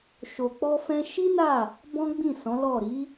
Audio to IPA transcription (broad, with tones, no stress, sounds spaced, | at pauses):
ʃ o˨ k͡p ɔ˧ f ɛ̃˧ ʃ i˦ n a˦˨ | b ɔ̃˦ ɡ͡b ĩ˦˨ s ɔ̃˨˦ l ɔ˦˨ ɾ i˨˦